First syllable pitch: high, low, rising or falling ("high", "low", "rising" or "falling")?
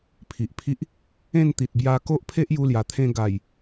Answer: low